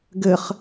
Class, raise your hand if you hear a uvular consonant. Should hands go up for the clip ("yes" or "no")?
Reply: yes